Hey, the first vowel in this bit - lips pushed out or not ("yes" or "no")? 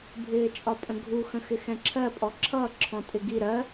no